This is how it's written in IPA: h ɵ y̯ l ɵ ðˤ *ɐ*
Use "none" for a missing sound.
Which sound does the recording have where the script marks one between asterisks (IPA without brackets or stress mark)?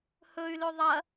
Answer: ɐ